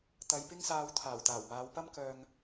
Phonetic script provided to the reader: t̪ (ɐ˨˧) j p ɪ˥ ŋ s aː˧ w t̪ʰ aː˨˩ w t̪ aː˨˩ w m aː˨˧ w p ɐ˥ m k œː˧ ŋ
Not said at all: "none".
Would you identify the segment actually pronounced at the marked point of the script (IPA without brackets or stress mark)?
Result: ɐ˨